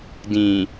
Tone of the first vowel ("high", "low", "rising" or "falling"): low